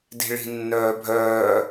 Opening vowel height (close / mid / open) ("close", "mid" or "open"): close